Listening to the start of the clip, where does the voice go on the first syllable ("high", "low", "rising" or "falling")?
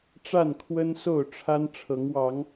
falling